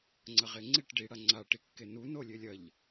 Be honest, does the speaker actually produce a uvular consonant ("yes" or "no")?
yes